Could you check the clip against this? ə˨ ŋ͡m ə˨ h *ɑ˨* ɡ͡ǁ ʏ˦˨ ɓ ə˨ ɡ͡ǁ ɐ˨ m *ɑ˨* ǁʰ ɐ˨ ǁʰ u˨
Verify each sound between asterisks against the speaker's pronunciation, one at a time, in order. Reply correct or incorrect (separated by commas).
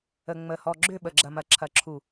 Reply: incorrect, incorrect